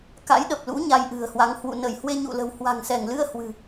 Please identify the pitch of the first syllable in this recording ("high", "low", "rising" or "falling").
rising